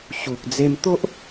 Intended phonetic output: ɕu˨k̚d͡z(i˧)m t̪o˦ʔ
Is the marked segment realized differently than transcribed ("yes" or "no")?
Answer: yes